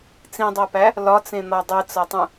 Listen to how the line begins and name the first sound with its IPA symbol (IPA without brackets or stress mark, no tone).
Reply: t͡s